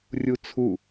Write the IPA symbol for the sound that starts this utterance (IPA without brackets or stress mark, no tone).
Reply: rʲ